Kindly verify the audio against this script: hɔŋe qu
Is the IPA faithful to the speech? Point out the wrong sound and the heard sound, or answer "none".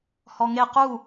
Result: none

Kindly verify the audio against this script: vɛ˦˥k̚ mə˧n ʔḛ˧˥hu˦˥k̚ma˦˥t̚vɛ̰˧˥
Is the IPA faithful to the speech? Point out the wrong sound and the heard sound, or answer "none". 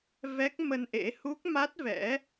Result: none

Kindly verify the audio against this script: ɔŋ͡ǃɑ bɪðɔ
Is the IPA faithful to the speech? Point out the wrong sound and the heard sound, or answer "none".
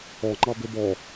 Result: ð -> b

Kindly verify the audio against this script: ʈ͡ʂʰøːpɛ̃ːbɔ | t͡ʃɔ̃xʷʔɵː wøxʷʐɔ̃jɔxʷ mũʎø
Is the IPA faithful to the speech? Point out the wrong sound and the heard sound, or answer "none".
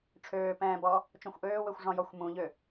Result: ɵː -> øː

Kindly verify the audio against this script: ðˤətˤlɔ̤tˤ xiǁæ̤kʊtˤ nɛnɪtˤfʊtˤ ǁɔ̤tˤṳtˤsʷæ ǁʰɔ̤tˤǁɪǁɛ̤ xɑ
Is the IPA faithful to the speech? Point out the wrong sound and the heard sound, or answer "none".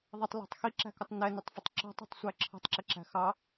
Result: ɛ̤ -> æ̤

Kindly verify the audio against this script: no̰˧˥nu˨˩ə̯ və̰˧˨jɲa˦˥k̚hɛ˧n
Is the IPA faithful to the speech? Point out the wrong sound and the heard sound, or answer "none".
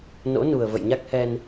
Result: none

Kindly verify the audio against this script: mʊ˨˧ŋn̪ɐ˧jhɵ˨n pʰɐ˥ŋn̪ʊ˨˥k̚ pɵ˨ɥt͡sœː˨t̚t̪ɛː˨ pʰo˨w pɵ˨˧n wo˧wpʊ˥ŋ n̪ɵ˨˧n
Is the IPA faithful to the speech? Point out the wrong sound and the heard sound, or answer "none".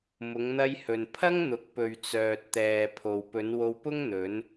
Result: none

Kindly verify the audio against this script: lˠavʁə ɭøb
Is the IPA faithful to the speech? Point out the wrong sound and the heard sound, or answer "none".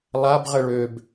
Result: v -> b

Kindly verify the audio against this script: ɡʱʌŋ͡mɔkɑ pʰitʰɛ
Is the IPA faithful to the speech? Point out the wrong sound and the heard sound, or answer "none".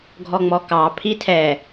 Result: ʌ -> ɔ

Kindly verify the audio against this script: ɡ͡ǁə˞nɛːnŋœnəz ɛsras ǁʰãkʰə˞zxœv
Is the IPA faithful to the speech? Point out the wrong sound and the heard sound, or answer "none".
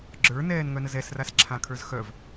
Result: none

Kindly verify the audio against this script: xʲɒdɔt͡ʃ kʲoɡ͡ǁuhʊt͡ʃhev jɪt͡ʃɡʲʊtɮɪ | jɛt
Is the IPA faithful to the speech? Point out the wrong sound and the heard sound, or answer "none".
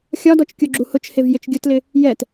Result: ɮ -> l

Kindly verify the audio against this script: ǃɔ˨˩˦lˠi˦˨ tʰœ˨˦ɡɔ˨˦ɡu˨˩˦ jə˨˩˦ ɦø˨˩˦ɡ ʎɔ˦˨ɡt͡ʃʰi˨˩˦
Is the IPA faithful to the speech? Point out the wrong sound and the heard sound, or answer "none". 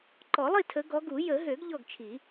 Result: œ˨˦ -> ə˨˦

